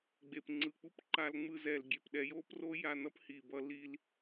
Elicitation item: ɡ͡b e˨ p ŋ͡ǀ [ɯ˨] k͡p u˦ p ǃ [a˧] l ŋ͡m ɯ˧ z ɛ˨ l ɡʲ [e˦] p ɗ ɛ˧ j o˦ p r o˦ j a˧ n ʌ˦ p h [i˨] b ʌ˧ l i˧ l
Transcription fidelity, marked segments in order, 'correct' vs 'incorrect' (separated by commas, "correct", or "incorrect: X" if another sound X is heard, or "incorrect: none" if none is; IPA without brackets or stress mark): correct, correct, incorrect: e˨, correct